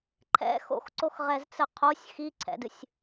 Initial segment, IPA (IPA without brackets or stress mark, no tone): ǃʰ